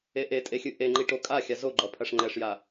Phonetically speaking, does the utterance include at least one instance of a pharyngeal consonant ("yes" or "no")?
no